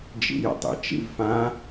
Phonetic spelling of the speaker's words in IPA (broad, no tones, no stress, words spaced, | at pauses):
d͡ʒḭjə̰tˤḭ t͡ʃḭvfã